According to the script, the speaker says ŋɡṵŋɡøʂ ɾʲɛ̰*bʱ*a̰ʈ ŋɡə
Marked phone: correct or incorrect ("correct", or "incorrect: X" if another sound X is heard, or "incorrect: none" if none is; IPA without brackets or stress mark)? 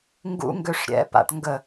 incorrect: p